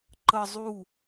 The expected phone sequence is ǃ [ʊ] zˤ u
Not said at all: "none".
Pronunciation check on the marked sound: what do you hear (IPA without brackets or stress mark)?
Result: ə